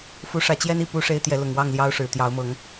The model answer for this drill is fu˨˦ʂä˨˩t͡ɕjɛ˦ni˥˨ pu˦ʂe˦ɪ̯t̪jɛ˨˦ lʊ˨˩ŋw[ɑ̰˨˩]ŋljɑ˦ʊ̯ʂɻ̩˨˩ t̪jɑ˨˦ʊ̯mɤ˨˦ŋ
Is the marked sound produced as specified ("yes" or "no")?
no